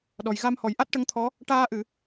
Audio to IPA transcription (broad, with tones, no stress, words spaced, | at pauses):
ɗɔ˨˩j ɣa˧mhɔ˨˩˨j ʔa˦˥t̚ʈə˧˥ŋt̪ʰɔ˧˥ | ʈaː˧ʔɨ˨˩˨